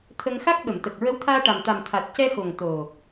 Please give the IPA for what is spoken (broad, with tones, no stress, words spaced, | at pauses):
t̪ʰə˧ŋ xa˦˥k̚ɓə˨˩˨mt̪ə˨˩k̚ ɹə˧˥wt̪ʰaː˧ʈa˨˩mt̪a˨˩m t̪ʰa˨˩t̚ cɛ˧xo˨˩ŋ t̪o˨˩